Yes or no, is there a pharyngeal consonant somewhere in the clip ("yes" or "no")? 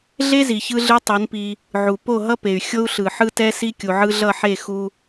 yes